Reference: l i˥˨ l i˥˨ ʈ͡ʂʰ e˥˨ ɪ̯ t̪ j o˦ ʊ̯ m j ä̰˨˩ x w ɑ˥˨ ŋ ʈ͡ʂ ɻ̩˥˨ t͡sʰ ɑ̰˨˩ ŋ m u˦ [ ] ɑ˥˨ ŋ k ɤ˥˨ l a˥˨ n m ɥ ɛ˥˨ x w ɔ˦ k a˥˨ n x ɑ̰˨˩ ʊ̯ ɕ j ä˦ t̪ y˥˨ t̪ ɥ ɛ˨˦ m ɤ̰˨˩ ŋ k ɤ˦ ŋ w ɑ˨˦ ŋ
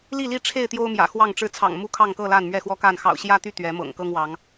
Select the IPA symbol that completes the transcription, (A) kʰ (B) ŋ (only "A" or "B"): A